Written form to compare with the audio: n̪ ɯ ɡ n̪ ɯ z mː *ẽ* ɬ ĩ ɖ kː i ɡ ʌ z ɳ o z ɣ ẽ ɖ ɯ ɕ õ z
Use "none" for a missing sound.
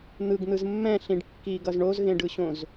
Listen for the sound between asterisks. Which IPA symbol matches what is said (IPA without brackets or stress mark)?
ɛ̃